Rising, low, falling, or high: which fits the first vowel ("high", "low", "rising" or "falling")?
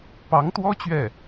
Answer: rising